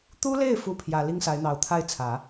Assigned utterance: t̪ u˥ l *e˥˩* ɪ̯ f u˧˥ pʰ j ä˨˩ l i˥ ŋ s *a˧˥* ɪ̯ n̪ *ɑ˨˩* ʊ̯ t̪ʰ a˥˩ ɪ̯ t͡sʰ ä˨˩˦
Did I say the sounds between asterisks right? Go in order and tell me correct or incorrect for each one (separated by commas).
correct, correct, correct